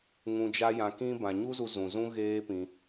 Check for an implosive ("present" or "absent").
absent